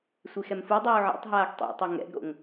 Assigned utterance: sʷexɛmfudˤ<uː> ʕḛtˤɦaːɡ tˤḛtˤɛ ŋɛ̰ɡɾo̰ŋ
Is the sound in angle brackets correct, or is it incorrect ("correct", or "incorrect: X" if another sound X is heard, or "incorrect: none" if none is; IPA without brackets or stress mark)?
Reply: correct